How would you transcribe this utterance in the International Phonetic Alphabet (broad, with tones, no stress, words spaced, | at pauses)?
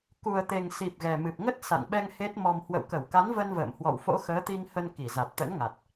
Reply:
ku˨˩ə̯t̪e˨˩ŋsi˨˩p̚ ɣɛ˨˩mɨ˨˩p̚ŋə˦˥t̚ sa̰˧˨nɓɛ˧ŋ he˦˥t̚mɔ˧m hwə̰˧˨wkə˧˩wka˨˦n və˧nvə̰ː˧˨mhwɔ̰˧˨w fo̰˧˥ xəː˨˦t̪i˧ŋhə˧n ki˧˩za˨˩t̚t̪ə̰˧˥nŋa˨˩t̚